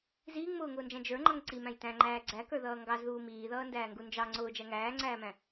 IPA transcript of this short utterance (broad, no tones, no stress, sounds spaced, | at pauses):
z iː ŋ m ʊː ŋ ʊː n d͡ʒ æ̃ d͡ʒ ə˞ ŋ͡ǃ ʌ ŋ ǀ i m æ̃ j t æ̃ ŋ͡ǃ æː ɡ͡ǀ æ k ə˞ ð ʌː ŋ ɡ ɑ z ð uː m iː ð ʌː n d æː ŋ ɡ u n d͡ʒ ɑ ŋ͡ǀ ʊː d͡ʒ æ ŋ æː ŋ͡ǀ æː m æ̃